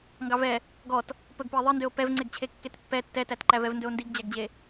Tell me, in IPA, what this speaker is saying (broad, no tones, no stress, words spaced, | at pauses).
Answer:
ŋɡɑvɛ | ɡɔt | pɵɡpøe̯ ðˤindøo̯ pɛvŋ͡ǀeɡt͡ɕʰe kːetpːɛ tːɛtætǃævɛv ndɵo̯ndiɡd͡ʑæɡd͡ʑe